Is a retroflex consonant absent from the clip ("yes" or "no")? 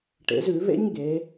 no